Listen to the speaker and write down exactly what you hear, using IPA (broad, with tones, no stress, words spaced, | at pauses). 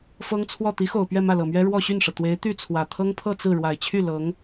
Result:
fɤ˥ŋt͡sʰwɔ˥˩ t̪i˧˥xo˨˩ʊ̯ pɥɛ˥˧mä˥˩lɤ˨˩mɥɛ˥ ɻwɔ˥˧ɕy˥˩nʂɤ˩ t̪we˧˥ɪ̯t̪y˥˩t͡sʰwä˨˩ t̪ʰɤ˥ŋpʰɤ˥˧ t͡sɹ̩˥˩ ɻwa˨˩ɪ̯t͡ɕʰy˥˩ lɤ˧˥ŋ